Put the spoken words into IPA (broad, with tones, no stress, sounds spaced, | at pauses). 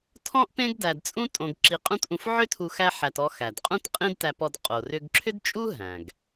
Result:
tʰ ɔ̃˥ ʔ p ẽ˥ ɡ d æ˧ d t͡sʼ ũ˥ tʼ õ˧ ɡ ǁ i˧ qʼ ũ˥ t ʔ ũ˧ f ʕ ʏ˥ tʰ u˧ x æ˥ ħ æ˧ t ɔ˧ x æ˩ d qʼ ũ˥ t qʼ ĩ˥ d t æ˧ p ɔ˧ d qʼ o˩ r ʏ˧ ɡ ǁʰ ʏ˥ d t͡ʃʼ u˥ ɦ æ̃˩ ɡ